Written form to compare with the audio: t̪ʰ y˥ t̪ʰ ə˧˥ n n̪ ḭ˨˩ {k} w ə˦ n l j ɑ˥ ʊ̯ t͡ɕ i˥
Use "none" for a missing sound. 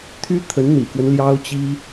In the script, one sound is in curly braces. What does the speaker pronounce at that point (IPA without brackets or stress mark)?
k